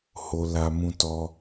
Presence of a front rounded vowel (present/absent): absent